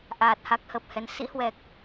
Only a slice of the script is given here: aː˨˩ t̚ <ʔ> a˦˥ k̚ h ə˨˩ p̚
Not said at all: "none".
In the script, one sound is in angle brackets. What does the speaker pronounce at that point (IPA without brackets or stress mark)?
h